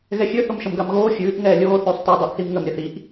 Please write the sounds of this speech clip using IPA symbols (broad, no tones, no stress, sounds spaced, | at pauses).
ɣ ɛ xʲ ø θ o m ʃ ə m ɡ a m ɣ oː xʲ ʉː ʔ ŋ ɛː lʲ oː θ ʉː sˤ t ɛ dˤ ɛ ʔ θ i m ŋ ə m ɾʲ ə θ i ʔ